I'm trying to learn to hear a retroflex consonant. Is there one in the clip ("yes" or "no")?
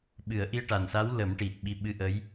yes